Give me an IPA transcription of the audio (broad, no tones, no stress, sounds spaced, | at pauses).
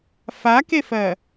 f a k e f ɜ